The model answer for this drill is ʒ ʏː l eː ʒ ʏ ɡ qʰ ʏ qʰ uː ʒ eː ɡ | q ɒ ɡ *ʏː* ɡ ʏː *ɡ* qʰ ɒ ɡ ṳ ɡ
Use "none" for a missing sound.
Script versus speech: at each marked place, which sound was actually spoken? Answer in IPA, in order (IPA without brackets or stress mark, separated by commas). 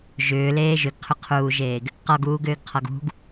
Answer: uː, ɡ